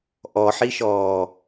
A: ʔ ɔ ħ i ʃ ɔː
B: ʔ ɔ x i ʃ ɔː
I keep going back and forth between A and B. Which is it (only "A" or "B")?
A